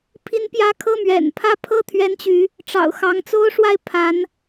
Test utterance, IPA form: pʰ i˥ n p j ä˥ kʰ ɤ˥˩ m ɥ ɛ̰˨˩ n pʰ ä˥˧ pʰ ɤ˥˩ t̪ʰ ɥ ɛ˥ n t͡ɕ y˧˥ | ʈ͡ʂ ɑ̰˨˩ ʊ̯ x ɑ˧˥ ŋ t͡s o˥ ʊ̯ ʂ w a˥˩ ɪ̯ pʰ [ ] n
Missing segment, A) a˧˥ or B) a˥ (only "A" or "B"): A